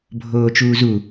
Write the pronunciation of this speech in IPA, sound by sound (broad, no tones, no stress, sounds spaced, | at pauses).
bʱ oː t͡ʃ uː z u